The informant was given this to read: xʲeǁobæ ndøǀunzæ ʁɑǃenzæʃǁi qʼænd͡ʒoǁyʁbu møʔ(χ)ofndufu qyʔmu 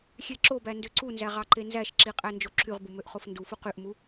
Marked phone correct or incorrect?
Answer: correct